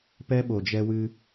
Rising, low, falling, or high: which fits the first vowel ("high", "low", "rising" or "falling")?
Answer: high